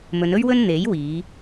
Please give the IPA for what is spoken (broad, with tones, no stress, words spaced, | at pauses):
mɵ˨˧nɵ˥ɥwɵ˥n n̪e˨˥jwiː˨˧